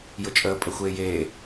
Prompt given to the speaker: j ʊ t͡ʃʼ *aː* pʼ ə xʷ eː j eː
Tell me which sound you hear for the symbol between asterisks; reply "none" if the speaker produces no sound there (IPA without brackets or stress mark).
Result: əː